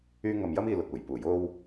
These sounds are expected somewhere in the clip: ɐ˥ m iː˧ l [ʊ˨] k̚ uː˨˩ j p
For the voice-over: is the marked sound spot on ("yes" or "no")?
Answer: yes